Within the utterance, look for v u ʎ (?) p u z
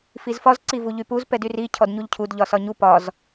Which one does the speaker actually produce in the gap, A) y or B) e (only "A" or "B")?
A